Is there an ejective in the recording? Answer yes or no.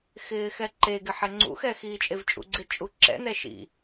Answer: yes